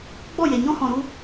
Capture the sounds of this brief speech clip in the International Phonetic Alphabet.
ɡ͡b ɔ˦˨ j e˨ ɲ ɔ̃˦ h ɔ̃˨ ɾ u˦

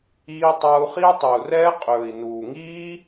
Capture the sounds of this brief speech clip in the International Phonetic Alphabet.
iː˧ tˤ ʌː˧ u̯ χ i˦ u̯ tˤ i˨ u̯ r ɛː˦ qʼ ɵː˨ i̯ n uː˨ ŋ iː˦

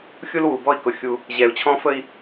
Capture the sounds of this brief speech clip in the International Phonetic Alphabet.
xʲ u˦ l w u˨ b ɔ˦ i̯ k ʊ˨ xʲ u˦ | ʑ ɛ˨ u̯ t͡ɕʰ ɔ̃˦ f ə˦ i̯

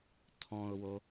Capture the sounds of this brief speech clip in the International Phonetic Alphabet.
tʰ ɔ̃ ʊ̯ w o

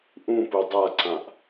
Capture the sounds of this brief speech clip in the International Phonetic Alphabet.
ʔ ũ p u dˤ a ǀ ã ʔ

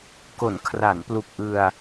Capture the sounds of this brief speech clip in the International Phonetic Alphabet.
k o˩˦ n kʰ r a˩˦ n p l u˨˩ k̚ ʔ ɯ˧ a̯

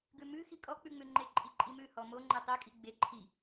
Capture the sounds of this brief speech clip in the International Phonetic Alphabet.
ɡ ʉ m ʉ x i kʼ ɔ k͡p ʉ ŋ͡m ʉ ŋ͡ǃ e ǃʼ i ǃʼ i m ʉ h ɔ m o ŋ͡ǃ e tˤ e kʼ i ɡ͡b e ǃʰ i

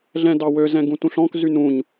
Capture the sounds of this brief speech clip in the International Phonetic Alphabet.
ɮ ɛ̃ d ɑ w ø z ɛ̃ ɡ ũ t ũ ɬ ɔ̃ k z y n ũ ɲ

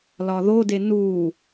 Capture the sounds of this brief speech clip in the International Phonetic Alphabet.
l ɒ ð o d e n u

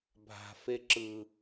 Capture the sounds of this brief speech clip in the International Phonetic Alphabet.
bʱ a̤ f e ǁ ɯ

